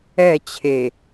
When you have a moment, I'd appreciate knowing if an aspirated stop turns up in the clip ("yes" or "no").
yes